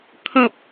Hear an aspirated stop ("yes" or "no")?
yes